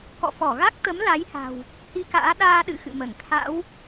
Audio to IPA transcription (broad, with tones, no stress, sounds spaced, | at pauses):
k ɔ̰˧˨ f ɔ˧˩ ɣ a˦˥ k̚ t̪ ə˨˦ m l a˨˦ j h a̤˨˩ w | h i˧ k a̰ː˧˥ ɗ aː˧ ɗ ɨ̰˧˨ x ɨ̰˧˨ m ə˧˩ n t̪ʰ a̰˧˥ w